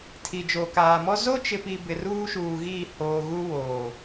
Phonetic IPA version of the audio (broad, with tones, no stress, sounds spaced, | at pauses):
tʰ i˨ d͡ʒ o˨ k aː˨ m ɔ˦ z o˦ t͡ʃ ɪ˨ p i˨ b ɪ˨ r uː˦ ʃ uː˨ ɣ iː˦˨ h oː˨ ɣ u˦ w oː˨